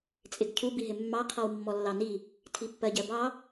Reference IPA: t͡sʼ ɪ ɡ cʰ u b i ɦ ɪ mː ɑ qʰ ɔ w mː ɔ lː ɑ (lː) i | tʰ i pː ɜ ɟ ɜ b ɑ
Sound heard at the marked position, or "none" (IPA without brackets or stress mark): n